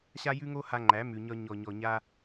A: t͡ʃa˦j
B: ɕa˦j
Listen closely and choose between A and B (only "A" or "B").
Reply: B